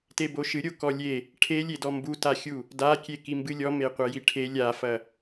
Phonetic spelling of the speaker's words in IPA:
t e b o ʃ ɨ ɾʲ o k ɔ lʲ e | ʈʰ e lʲ e d ɔ m b u t a xʲ u | d a kʲ e k i m b ɨ lʲ ɔ m e qʷ ɐ j i ʈʰ e lʲ a f ɐ

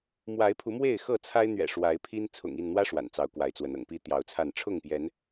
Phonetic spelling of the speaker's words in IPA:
m w a˨˦ ɪ̯ pʰ u˨˦ m w e˥˨ ɪ̯ x ɤ˥˨ t͡sʰ a˦ ɪ̯ n̪ ɥ ɛ̰˨˩ ʂ w a˨˦ ɪ̯ pʰ i˦ n t͡sʰ ʊ̰˨˩ ŋ i˥˨ n n̪ w ä˦ ʂ w a̰˨˩ n t͡s ɑ˨˦ ʊ̯ k w a˨˦ ɪ̯ t͡s w ə˨˦ n ɤ̰˨˩ ŋ p i˦ t̪ j ɑ˨˦ ʊ̯ t͡sʰ a˥˨ n ʈ͡ʂʰ ʊ˥˨ ŋ p j ɛ˨˦ n

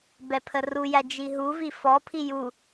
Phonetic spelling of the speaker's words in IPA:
b ɛ pʰ ə r u j æ d͡ʒ i ɦ u v i f ɔ pʰ i j u

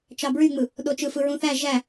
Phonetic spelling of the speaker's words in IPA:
t͡ʃ ɑ b ɹ y ŋ͡m ɯ | ɗ o t͡ʃ ɯ f ɯ ɹ ũ θ æ ʒ æ

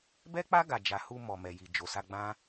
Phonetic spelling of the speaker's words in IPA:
b ɛ˦ k͡p a˦ ɡ a˧ d͡ʒ a˧ h u˧ m ɔ˨ m ɛ˨ j i˨ d͡ʒ o˨ s a˧ ɡ͡b ã˦

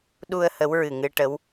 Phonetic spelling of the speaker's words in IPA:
ɗ u˧ ə̯ h ə˧˥ w ɹ ɨ˨˩ ŋ ɨ˧ ʈ ə˧˥ w

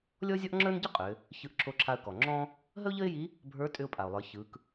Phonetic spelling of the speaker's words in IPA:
lʲ ɔ˥ zʲ ɔ˥ ʔ ŋ͡ǁ ə˞˥ n ɟ ə˥ qʼ ʏ˩˧ | ç ɯ˧ ʔ ǁʰ o˧˥ ǁʰ a˧ ə̯ k ɔ˩ ŋ͡ǁ ɔ̃˥ | ɦ ə˥ ʊ̯ ʎ ə˥ ɪ̯ j i˧˥ | bʱ ə˞˧˥ tʼ ʏ˧ ʊ̯ pʼ a˩ ʊ̯ lˠ ə˞˩˧ ç ɯ˩˧ k

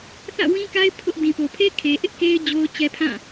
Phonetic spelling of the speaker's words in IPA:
θ ä̰˦˨ w ĩ˦ k a˦ ɪ̯ pʰ ʊ˦ ʔ d ĩ˨ p o˨ pʰ e˦ kʰ e˦ ʔ ɪ˦ ʔ k e˦ ɪ̯ d͡ʑ o˦ ʊ̯ t͡ɕ ɛ˦ pʰ ã˦˨

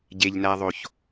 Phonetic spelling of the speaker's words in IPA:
ɟ e ʎ n æ ðˤ o ç

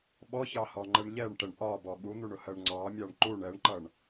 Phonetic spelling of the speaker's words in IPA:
ɓ ɔ ç ɑ h ɔ ŋ͡ǃ ɛ ɳ ʎ ɛ ɳ ʈ ɛ ɳ ʔ ɒ b ɔ ɠ u n̪ u ɳ ʊ h ɜ ɳ ŋ͡ǀ ɑ mʲ ɑ ɳ ǃ u ɳ ɛ ɳ ǃ ʌ ɳ

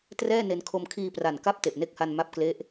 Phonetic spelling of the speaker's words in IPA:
t r ɛː˥˩ n e˧ n kʰ o˧ m kʰ iː˧ p r a˨˩ n k a˦˥ p̚ t e˨˩ ʔ n e˦˥ k̚ h a˧ n m a˦˥ p̚ k l e˦˥ ʔ

